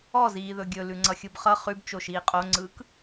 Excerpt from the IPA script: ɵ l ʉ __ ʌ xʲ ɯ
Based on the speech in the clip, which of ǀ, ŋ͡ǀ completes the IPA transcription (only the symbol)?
ŋ͡ǀ